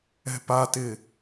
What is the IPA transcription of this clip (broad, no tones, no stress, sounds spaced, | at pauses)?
ɛ̤ p a t ɪ